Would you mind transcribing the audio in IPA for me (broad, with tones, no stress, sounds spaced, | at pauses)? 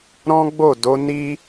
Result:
ɾ ɔ̃˦ ɡ͡b o˦˨ d o˨˦ n i˦